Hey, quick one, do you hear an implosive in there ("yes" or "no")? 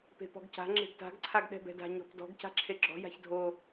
yes